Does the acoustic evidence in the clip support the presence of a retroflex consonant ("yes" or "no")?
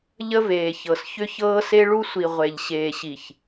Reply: yes